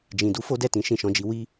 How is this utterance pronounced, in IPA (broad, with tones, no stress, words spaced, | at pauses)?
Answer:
d͡ʒĩ˨ du˧fo˦dɛ˦˨ tĩ˨˦ʃĩ˦˨ʃɔ̃˨˦d͡ʒi˧ wi˦